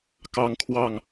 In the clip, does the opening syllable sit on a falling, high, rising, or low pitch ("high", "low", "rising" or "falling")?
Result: high